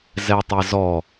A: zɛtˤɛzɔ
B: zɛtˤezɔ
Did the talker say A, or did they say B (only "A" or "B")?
B